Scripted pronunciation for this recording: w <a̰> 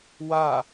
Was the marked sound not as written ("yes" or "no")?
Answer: yes